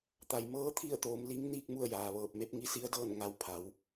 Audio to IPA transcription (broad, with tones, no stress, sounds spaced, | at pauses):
t̪ a˩ j m ɤː˧˥ t̪ʰ i˥˨ ə̯ t̪ oː˩˧ m l i˧˥ ŋ n iː˥˨ k̚ m u˥˨ ə̯ j aː˩ ʋ ɤː˧˩ p̚ m e˧˥ p̚ ŋ i˧˥ s i˧˥ ə̯ d ɤː˥˨ n ŋ a˧ w pʰ a˩˧ w